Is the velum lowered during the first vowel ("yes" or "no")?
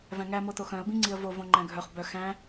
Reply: yes